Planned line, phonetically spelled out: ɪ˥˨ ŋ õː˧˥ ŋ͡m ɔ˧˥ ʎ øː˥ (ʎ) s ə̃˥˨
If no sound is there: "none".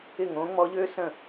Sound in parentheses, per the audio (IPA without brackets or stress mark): none